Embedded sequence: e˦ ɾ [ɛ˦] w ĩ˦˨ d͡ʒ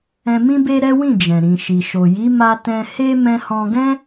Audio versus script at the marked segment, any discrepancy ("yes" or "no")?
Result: no